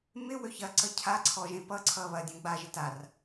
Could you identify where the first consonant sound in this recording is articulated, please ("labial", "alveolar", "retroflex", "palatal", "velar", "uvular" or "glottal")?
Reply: labial